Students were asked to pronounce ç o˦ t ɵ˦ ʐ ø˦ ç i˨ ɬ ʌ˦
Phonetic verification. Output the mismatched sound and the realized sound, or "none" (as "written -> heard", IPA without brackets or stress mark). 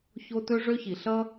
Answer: none